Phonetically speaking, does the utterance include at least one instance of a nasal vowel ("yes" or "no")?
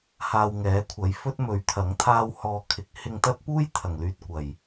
no